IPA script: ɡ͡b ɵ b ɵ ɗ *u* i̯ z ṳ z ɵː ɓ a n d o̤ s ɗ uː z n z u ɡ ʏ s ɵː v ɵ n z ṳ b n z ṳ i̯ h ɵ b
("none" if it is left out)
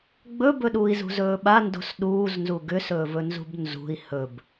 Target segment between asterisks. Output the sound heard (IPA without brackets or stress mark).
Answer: uː